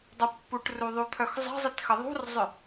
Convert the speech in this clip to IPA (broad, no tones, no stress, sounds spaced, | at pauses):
dˤ ə pː u ʈ r u ðˤ u t̪ʰ œ x zˤ ə̤ zˤ i t x ə ðˤ ṳ r zˤ ʏ